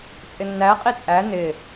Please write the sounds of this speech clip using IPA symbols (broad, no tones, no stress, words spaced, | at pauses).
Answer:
t͡sʼɪnːæ qʼit͡sʼæ nɪ